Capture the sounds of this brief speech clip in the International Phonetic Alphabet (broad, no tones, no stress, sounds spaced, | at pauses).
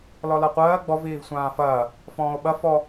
l ɔ l ʌ qʷ ɜː ɡ͡b ɔ v iː v sʷ ãː f ɐː | f ɔ̃ː o̯ ɓ ɐ f ɔ